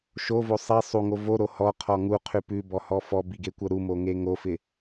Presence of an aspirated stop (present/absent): present